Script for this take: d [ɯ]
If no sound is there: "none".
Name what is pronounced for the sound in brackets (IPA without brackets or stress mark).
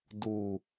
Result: u